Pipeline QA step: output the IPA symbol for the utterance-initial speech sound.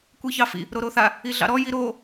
kʷ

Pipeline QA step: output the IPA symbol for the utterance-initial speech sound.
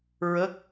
ɹ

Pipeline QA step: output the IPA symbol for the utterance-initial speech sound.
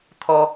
t̪ʰ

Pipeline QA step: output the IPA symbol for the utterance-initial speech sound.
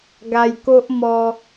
ɡ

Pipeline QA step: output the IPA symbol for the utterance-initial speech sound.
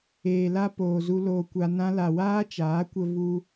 eː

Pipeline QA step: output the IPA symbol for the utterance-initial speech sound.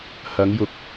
h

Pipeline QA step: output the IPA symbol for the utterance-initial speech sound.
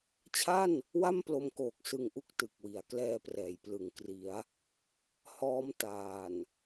t͡ɕʰ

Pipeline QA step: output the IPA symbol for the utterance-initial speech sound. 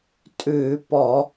tʼ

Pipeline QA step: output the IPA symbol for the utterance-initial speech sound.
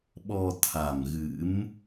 ɓ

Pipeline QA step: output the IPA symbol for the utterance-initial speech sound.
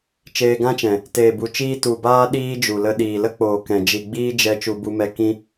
t͡ʃ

